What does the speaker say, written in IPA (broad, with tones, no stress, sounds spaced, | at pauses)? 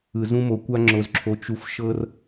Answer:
ɯ˨ z ũ˧ m o˨ kʷ a˦ ŋ͡ǁ o˧ z ǁʰ o˧ t͡ʃ u˧ f ʃ ɤ˦ r